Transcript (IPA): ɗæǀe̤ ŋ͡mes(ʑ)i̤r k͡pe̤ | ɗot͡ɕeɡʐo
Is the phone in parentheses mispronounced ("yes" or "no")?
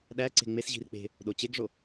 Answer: no